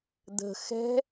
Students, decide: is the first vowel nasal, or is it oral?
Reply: oral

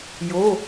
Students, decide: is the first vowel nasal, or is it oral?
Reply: oral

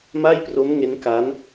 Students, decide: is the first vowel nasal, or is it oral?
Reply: oral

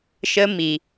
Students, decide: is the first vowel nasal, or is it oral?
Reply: oral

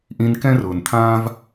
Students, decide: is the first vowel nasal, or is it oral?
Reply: nasal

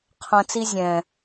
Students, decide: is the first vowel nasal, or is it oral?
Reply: nasal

